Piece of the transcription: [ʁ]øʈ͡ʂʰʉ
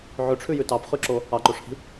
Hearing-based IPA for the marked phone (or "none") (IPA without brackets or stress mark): ʕ